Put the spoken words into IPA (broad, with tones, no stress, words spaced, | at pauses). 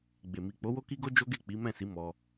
ɡ͡be˨ mi˨k͡po˨˦ wo˦ki˦ɡo˦ d͡ʒo˦ɡe˦˨ k͡pi˨˦mɛ̃˦˨si˨˦ mɔ˧